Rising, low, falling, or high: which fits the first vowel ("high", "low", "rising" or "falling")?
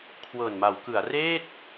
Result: low